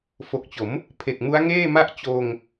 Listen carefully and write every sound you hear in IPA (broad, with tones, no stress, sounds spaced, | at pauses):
f o˨˩ k̚ t͡ɕ o˩˦ m | pʰ e˨˩ k̚ m u˦˥ a̯ ŋ eː˥˩ m a˥˩ ʔ t͡ɕ oː˧ ŋ